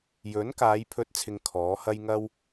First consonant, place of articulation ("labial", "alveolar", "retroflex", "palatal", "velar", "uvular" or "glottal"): palatal